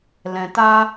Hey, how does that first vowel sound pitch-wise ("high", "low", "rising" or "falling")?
low